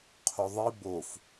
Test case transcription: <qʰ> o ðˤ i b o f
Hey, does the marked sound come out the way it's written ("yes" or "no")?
yes